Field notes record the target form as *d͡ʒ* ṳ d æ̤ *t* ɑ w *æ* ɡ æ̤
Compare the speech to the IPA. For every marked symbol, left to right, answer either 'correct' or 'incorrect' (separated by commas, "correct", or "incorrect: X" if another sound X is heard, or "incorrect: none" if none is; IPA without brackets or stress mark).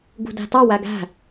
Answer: incorrect: ɡ, correct, correct